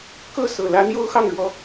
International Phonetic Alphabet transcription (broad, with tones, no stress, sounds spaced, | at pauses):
k ɤ˥˩ s ɤ˨˩ l ä˧˥ n̪ j o˥ ʊ̯ x ɑ˥˩ ŋ ɻ w ɔ˧˥